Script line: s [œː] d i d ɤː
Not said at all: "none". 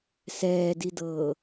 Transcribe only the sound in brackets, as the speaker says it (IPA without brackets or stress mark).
ɛː